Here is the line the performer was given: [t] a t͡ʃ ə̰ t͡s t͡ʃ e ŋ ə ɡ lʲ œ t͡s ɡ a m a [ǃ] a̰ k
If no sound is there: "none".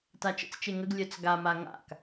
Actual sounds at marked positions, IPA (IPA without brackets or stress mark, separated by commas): t, ŋ